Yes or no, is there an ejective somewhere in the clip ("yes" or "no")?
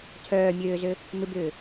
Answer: no